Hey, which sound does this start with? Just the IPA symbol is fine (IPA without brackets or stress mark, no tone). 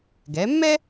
ɡ